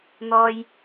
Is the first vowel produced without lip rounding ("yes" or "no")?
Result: no